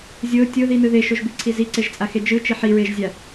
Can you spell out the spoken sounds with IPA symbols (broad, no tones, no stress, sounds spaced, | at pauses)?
zʲ o tʲ o ð i n ɯ ð e ʃ o ʒ b i ǀʰ i z i ǀ e ʒ t͡sʼ a x e d͡ʒ ɯ t͡ʃ i ħ i ɹ e ʒ zʲ a